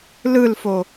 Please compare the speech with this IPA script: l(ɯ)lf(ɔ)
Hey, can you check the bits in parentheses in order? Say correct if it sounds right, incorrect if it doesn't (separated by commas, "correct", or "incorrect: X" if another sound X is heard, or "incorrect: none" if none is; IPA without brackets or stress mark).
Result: correct, incorrect: o